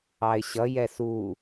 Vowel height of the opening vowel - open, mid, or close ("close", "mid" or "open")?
open